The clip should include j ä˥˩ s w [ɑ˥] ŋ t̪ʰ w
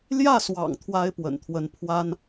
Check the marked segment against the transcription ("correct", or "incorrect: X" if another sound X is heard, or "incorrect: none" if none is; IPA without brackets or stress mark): incorrect: ɑ̰˨˩